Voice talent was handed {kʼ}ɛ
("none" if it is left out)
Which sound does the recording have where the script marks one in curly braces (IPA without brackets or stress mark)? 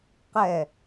q